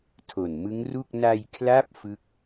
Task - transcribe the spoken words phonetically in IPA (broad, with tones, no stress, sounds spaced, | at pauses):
tʰ o˨˩ n m ɯ˦˥ ŋ r u˥˩ k̚ n a˧ j kʰ l a˦˥ p̚ f ɯ˥˩ k̚